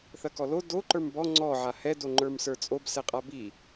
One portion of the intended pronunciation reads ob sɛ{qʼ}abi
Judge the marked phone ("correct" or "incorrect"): correct